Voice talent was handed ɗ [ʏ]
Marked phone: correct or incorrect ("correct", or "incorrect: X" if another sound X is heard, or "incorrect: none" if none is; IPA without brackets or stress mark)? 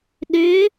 correct